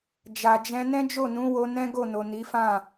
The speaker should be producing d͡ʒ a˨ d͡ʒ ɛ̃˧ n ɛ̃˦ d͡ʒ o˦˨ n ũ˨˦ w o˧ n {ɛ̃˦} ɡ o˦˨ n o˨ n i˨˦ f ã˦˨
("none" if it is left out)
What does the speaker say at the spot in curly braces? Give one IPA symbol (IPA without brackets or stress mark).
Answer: ɛ̃˦